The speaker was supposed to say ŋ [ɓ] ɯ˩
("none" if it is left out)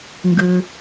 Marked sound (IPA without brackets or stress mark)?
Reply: ɡ